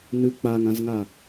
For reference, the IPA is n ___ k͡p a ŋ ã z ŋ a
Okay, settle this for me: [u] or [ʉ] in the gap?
ʉ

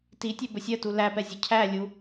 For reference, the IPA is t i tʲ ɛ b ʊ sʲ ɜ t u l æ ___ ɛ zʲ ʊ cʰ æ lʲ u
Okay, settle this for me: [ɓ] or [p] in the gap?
p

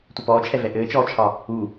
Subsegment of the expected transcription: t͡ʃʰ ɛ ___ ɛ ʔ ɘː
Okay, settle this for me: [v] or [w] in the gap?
v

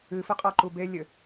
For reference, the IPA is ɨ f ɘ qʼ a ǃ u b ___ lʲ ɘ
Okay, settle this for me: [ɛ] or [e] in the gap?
e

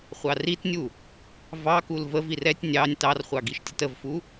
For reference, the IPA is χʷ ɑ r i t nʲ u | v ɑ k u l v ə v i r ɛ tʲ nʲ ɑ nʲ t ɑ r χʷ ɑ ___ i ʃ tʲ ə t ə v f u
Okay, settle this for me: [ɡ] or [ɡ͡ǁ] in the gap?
ɡ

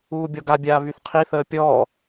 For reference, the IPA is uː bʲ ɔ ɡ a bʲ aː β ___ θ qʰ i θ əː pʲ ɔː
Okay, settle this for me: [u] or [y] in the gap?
y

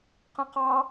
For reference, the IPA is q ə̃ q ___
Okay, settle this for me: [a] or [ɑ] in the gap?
ɑ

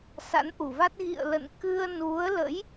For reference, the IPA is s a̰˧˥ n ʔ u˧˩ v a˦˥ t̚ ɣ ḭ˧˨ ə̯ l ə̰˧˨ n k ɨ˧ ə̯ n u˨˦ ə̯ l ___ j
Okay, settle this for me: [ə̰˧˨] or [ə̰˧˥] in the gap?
ə̰˧˥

